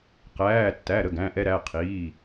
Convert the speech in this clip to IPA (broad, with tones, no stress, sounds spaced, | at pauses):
q æː˩˧˩ tː æ˩˧˩ ɾ ə˩˧˩ ɡ æ̃˩˧˩ ʔ ɛ˧ ɾ æ˩˧˩ qʰ iː˩˧˩